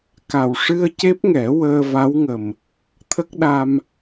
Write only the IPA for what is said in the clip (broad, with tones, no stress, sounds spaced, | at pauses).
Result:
k a˨˩ w ʂ ɨ˧ ə̯ c e˦˥ p̚ ŋ ɛ˨˩˦ w əː˧ v a˧˥ w ŋ ə˨˩ m | t̪ʰ ə˦˥ k̚ ɗ a˧ m